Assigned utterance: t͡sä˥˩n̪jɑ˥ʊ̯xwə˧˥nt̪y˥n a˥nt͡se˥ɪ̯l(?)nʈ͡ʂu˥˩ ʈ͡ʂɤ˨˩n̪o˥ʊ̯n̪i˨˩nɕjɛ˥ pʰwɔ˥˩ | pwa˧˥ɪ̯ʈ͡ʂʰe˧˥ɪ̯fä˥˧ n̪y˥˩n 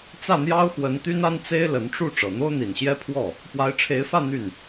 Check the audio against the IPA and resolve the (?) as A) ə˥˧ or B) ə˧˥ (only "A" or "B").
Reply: B